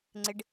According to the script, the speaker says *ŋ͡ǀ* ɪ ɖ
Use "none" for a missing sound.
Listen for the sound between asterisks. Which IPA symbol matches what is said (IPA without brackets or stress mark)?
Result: ŋ͡ǀ